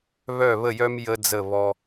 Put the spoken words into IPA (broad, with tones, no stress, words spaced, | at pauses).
βœ˦˨βə˦˨jœ˦m jə˦d͡zə˦˨ βɔ˧